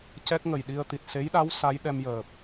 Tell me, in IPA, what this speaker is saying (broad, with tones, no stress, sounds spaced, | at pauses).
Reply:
c ɛ˦˥ k̚ ŋ ə˨˩ j ɗ i˧ ə̯ t̪ i˨˩ t̚ s e˧˥ j ɗ a˧˥ w s a˧˥ j ɗ ɛ˧ m j əː˨˩ p̚